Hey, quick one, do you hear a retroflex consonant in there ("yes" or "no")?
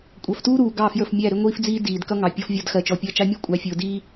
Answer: no